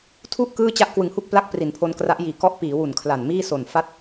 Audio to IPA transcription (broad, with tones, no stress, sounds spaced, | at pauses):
tʰ u˥˩ ʔ k ɯː˥˩ t͡ɕ a˥˩ ʔ k w ɯ˨˩ ŋ h u˥˩ k̚ p l a˦˥ k̚ p r i˩˦ n pʰ o˧ n k r a˦˥ ʔ j iː˨˩ k ɔ˦˥ ʔ p iː˩˦ w u˨˩ n kʰ l a˨˩ n m iː˥˩ s o˨˩ n f a˥˩ t̚